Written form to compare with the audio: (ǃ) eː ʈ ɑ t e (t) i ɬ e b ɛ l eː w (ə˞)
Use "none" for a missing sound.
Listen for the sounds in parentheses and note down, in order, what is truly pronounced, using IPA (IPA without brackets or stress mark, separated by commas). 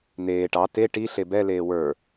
n, ʈ, ə˞